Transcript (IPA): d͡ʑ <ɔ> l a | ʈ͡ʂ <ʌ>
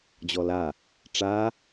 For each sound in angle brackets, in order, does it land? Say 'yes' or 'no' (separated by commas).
yes, no